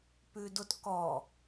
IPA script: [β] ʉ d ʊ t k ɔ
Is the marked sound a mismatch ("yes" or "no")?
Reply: yes